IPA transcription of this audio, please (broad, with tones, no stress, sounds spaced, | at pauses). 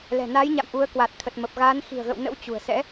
l ɛ̤˨˩ n a˨˦ j ɲ a̰˧˨ m ʔ u˨˦ ə̯ k w a˨˩ t̚ t̪ʰ ə˨˩ t̚ m ə˨˩ p̚ ɣ aː˨˦ n x i̤˨˩ ə̯ ɣ ə̰˧˨ w n ə̰˧˥ w t͡ɕ ṳ˨˩ ə̯ s ɛ̰˧˥